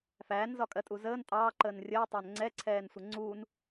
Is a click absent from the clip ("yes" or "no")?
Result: no